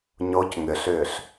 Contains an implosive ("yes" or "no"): no